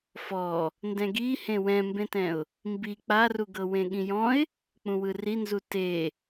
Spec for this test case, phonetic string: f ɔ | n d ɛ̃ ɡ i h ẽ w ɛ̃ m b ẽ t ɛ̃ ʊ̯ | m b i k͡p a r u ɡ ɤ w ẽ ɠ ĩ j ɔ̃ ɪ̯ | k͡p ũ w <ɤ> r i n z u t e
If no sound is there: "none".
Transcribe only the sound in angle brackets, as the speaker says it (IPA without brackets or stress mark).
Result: ɯ